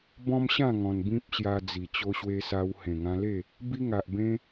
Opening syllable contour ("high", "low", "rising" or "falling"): high